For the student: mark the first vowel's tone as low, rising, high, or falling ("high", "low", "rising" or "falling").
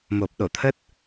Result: low